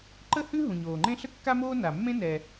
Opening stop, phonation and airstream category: click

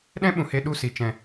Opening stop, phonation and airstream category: implosive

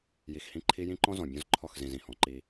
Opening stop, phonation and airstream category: click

